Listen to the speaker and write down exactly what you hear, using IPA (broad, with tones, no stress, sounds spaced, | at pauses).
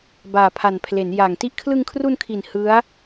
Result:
b aː˨˩ pʰ a˨˩ n pʰ l e˩˦ n j a˨˩ ŋ t i˥˩ ʔ kʰ l ɯ˧ ŋ kʰ r u˧ n kʰ i˨˩ n h ɯ˦˥ a̯